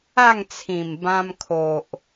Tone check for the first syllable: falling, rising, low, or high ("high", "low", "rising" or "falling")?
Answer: falling